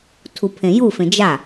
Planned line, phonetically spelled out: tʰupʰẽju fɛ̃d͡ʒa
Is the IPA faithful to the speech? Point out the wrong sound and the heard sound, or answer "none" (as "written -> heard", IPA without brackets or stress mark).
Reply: ɛ̃ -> ẽ